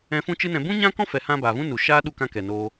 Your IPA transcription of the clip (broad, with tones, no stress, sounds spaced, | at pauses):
ɛ̃˧ f ũ˦ t͡ʃ ɨ˦ n ɛ̃˧ b ũ˦ ɲ ã˦ k ɔ̃˦ f ɛ˨ h ã˧ b a˨ v ũ˦ n u˨ ʃ aː˦ ɗ u˧ k ã˦ k ɛ˨ n oː˦